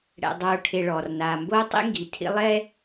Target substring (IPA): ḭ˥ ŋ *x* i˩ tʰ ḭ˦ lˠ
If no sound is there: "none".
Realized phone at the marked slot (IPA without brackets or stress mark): ɡ